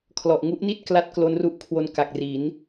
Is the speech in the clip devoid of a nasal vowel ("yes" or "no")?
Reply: yes